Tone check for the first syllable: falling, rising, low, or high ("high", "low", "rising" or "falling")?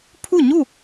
falling